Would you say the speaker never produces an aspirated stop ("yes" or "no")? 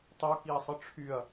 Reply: no